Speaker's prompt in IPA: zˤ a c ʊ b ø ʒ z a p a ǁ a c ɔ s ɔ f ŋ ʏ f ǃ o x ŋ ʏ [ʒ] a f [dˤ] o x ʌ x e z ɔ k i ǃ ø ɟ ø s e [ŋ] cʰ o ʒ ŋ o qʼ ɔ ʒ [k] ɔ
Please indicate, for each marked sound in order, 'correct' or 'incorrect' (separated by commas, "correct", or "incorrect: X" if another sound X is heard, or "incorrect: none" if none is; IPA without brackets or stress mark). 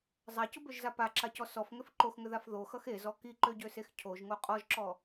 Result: incorrect: ð, incorrect: ð, incorrect: x, incorrect: ǁ